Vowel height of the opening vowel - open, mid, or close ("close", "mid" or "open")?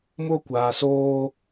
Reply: mid